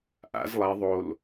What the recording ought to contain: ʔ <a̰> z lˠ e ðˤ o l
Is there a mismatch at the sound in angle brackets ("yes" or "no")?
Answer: no